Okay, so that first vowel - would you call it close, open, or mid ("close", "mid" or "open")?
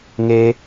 mid